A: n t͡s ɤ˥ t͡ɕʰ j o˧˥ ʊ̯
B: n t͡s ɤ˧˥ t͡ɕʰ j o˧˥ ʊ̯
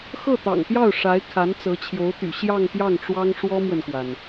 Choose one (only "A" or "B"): B